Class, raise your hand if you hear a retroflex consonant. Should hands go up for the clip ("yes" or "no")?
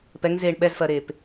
yes